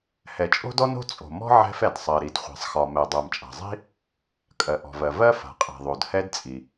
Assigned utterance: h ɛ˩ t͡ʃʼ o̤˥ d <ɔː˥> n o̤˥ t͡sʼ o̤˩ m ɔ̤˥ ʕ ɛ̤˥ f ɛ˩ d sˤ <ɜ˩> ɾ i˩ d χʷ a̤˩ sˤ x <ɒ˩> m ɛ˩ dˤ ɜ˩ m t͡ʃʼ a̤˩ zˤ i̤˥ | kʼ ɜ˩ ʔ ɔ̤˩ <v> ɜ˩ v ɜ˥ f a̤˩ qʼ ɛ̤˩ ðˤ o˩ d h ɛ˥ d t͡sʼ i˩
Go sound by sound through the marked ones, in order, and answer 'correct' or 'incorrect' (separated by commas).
incorrect, correct, correct, correct